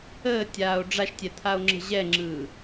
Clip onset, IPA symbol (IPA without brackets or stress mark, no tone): əː